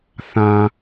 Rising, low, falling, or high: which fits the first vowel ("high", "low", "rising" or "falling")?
low